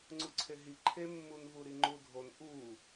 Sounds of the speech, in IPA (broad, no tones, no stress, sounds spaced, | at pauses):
ŋ͡ǀ u ǀʰ e ɦ i ǃʰ e mː u n v u ɾ i ŋ͡ǃ u dʱ o n ʔ u